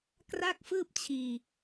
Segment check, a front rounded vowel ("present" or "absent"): absent